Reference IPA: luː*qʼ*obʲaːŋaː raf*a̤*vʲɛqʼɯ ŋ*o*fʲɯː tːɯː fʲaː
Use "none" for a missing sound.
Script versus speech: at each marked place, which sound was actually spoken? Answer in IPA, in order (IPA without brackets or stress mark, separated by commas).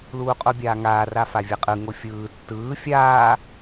qʼ, a, o